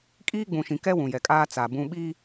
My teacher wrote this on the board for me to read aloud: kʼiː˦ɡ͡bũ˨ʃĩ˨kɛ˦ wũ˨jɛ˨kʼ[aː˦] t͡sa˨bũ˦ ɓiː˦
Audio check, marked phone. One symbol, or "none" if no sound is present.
aː˦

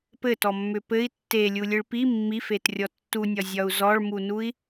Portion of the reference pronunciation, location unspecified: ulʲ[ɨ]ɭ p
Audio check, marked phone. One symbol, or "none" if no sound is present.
ɨ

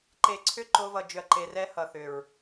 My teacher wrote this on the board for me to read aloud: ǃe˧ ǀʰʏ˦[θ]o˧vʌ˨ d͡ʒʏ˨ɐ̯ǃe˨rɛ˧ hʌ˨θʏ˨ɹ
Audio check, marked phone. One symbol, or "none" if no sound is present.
ǃ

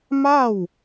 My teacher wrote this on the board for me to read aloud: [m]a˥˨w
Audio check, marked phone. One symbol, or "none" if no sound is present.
m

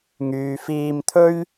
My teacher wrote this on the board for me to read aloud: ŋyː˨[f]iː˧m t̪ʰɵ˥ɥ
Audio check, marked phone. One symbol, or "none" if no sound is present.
f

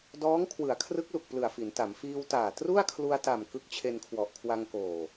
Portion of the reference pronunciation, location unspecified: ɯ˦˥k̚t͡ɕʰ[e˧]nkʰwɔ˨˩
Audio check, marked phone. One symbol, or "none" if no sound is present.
e˧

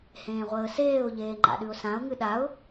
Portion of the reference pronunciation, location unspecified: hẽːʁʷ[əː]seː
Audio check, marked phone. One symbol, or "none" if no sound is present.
əː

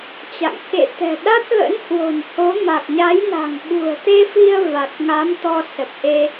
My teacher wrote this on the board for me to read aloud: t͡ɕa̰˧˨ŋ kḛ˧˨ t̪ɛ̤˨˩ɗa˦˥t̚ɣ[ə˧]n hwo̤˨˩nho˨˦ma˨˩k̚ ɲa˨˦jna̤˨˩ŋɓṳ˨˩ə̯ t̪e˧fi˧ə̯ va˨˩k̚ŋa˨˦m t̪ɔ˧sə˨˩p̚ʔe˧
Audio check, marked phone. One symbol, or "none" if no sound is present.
ə̰˧˥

